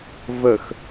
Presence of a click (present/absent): absent